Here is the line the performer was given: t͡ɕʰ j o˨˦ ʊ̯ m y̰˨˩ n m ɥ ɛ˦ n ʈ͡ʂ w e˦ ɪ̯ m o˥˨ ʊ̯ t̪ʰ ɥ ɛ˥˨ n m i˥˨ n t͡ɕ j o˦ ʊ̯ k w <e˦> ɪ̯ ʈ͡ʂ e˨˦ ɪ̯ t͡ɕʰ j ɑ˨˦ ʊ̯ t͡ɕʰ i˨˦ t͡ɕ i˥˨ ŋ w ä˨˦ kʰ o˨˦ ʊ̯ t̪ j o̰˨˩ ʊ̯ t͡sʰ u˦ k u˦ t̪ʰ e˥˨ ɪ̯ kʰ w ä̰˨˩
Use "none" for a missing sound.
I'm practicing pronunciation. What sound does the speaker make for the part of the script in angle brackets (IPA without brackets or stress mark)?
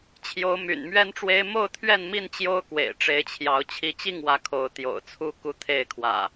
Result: ḛ˨˩